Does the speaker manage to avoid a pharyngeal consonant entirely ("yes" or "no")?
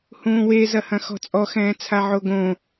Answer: no